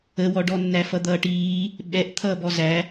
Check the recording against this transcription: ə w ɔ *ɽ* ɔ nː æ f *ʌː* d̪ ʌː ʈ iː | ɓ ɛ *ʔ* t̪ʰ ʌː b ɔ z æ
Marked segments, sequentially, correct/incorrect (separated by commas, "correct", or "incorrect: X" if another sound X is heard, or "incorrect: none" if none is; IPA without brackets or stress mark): incorrect: ɖ, incorrect: ʌ, correct